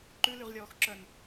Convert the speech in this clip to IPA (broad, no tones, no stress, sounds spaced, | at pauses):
ǃ ʉ l y ʁ lʲ ɔː x ǁ œ n